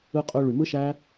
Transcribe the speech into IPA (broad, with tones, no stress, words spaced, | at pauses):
ɯ˧qʼø˧ ɭy˨mɯ˦ʃæ˦